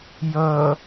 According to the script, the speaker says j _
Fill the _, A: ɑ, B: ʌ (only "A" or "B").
B